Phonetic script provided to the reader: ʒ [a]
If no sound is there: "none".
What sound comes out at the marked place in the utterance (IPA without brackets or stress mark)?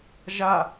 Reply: a